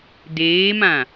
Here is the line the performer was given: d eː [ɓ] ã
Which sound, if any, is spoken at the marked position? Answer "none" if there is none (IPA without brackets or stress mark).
m